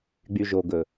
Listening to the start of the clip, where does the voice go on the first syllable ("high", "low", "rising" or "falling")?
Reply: low